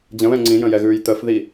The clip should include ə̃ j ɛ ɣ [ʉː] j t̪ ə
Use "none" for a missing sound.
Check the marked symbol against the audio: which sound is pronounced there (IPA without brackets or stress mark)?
ʉː